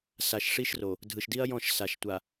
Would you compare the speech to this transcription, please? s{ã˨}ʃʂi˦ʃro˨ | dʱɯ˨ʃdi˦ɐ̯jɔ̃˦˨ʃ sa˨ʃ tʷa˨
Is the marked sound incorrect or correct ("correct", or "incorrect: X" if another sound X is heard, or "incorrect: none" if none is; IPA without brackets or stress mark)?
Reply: incorrect: a˨